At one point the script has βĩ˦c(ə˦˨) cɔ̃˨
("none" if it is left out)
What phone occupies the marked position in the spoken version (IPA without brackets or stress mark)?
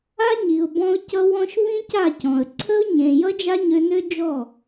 a˦˨